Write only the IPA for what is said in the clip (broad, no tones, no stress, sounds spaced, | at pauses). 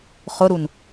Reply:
χ ʊ ɾ u n